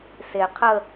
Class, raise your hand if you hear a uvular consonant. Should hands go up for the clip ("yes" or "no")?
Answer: yes